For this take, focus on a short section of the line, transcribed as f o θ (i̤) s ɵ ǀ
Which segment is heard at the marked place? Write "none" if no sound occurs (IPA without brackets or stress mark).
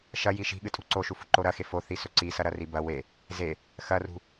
i